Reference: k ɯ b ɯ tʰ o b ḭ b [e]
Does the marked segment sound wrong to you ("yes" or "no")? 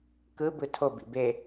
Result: no